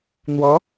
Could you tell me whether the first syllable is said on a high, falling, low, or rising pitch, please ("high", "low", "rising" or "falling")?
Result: rising